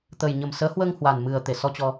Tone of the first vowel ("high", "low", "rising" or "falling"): low